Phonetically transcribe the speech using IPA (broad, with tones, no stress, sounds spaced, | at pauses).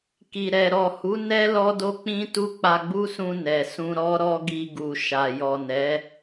k i˨ ɾ ɛ˨ ɾ ɔ˨ h u˨˦ n ɛ˦ l ɔ˦ d o˦ k͡p ĩ˦ t u˦ k͡p a˧ ɡ͡b u˦ s ũ˧ n ɛ˨ s ũ˧ ɾ ɔ˦ ɾ ɔ˦ ɡ i˧ ɡ u˨ ʃ a˨ j ɔ˨ n ɛ˨˦